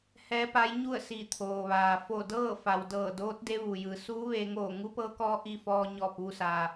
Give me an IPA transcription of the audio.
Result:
h ɛː˧˥ p a˧˥ j ɲ u˥˨ ə̯ s i˧˩ t̪ʰ oː˩ ʋ aː˩ f o˧˩ d ɤː˥˨ f a˩ w d ɤː˧˩ d oː˧˥ t̚ d e˧˥ ʋ u˩ j ɯː˩˧ s uː˧˥ ʋ e˧ ŋ oː˧˩ ŋ u˧˥ p ɤː˧˥ k ɔː˧˥ ʔ i˧ f ɔː˧ ɲ ɔː˧˩ p̚ ʋ u˧ s aː˩

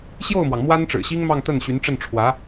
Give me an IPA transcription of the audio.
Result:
ɕ j o˥˩ ʊ̯ m w ɑ˩ ŋ m w a˥ n ʈ͡ʂ ɻ̩˨˩ ɕ i˥ ŋ m ɑ˥˧ ŋ t̪ ə˥˩ n ɕ y˧˥ n ʈ͡ʂ ə˥˩ n ʈ͡ʂʰ w ä˧˥

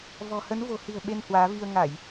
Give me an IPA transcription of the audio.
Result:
v ɔ̤˨˩ h ə˨˦ n v o̤˨˩ h ɨ̤˨˩ ə̯ ɓ e˧ n h w aː˨˦ v i˧ ə̯ ŋ a˧˩˨ j

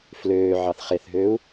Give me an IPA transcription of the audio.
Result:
f l øː ʕ ɑ θ χ e θ ɦ øː u̯

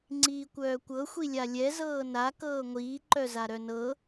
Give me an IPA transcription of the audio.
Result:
ŋ͡ǀ iː kʷ œː kʷ ɤ xʷ i lʲ a lʲ ɛ z ɤː n a k ɤː ŋʷ iː ǃ œ z a ɾ œ n ɤ

